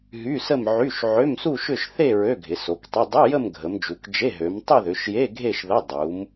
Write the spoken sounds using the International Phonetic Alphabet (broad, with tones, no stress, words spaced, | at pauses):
ɦy˧˥˧sə˥˧mʕy˧˥˧ʃ ʕø˧˥˧msu˥˧ʃʏ˥˧ʃ θe˥˧ ɹø˧˥˧ɡʱɪ˩˧so˩˧ktˤə˧˥˧ dˤʊ˧˥˧ jə˥˧mɡʱə˩˧md͡ʒu˩˧kd͡ʒe˧˥˧ ɦø˩˧mtˤɪ˥˧ðʏ˩˧ʃje˧˥˧ ɡʱe˥˧ʃðə˧˥˧ dˤu˩˧m